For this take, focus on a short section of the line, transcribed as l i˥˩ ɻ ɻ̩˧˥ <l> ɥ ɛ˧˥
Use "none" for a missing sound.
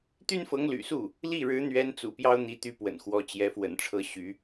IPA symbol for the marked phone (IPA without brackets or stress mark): n̪